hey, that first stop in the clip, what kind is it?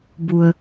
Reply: plain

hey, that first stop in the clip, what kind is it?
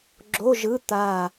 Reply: click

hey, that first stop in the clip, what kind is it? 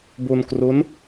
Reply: plain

